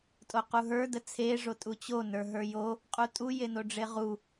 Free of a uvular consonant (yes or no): no